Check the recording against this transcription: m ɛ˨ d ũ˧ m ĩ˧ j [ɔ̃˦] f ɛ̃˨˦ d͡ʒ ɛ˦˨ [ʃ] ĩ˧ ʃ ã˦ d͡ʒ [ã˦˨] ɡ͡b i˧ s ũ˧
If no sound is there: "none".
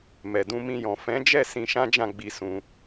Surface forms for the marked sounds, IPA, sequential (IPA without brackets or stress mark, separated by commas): ɔ̃˨, s, ã˦˨